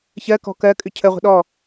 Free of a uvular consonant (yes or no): no